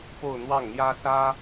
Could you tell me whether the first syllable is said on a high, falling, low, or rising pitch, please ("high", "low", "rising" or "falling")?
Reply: falling